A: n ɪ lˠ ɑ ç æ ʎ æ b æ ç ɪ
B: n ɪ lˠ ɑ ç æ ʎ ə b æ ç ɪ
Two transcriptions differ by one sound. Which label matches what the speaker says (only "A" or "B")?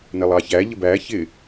B